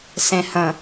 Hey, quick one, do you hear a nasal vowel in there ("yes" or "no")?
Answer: yes